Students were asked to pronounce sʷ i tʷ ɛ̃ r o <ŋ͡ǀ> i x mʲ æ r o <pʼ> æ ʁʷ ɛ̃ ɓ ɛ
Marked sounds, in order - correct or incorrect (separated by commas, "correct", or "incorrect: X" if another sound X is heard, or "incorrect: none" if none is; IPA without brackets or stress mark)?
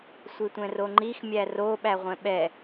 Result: incorrect: ŋ͡ǃ, incorrect: ɓ